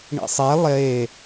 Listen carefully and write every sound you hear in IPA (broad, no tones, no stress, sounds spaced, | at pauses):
ɳ ḭ sˤ e lˠ e